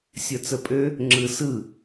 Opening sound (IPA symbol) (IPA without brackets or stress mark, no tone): sʲ